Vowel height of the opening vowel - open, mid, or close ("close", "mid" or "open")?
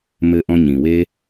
mid